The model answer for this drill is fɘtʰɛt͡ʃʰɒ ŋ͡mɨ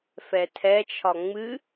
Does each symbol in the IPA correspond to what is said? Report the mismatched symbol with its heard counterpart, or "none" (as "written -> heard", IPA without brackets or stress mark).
ɘ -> ɛ